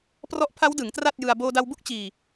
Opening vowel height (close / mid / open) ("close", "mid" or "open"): mid